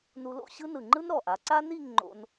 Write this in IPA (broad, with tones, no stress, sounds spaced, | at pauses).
n u˧ l o̰˥˧ ɕ ɯ˥ n ɯ˧˩ ŋ͡ǃ ɯ˥ n ɾ ɔ˧˩ ʔ a˩˧ ǀ a˥ n i˥˧ ŋ ŋ͡ǃ o̰˧ n